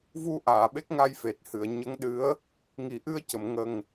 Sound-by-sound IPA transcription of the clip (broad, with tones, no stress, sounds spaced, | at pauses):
v u˧ ʔ aː˨˩˨ ɓ e˦˥ k̚ ŋ a˧ j f e˨˩ t̚ h ɨ˨˩˨ ə̯ ɲ ə˧˥ ŋ ɗ ɨ˧˥ ə̯ | ŋ i˨˩˦ ʔ ɨ˧ ə̯ c ə˨˩˨ m ŋ ə˨˩ ŋ